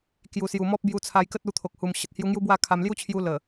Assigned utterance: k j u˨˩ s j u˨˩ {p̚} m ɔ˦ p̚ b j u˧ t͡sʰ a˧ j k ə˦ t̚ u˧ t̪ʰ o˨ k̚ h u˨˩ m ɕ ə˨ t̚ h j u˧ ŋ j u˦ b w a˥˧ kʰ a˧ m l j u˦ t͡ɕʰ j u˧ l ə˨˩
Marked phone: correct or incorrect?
incorrect